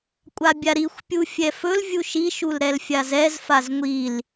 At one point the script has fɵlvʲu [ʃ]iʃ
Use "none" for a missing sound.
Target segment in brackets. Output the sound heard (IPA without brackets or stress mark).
ʃ